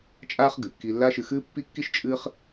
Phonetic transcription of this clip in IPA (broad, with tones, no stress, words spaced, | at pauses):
t͡ʃʼaː˥χ ɡɨ˩kːi˧lːa˥ʃɨ˧ xɨː˥pːi˥kːi˥ʃ t͡ʃʼɨː˥χ